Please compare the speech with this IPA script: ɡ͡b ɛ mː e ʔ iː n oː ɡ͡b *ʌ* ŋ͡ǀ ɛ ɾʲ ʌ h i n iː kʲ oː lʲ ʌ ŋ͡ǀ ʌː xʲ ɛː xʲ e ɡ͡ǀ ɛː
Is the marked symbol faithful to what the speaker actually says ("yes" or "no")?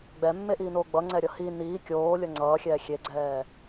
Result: yes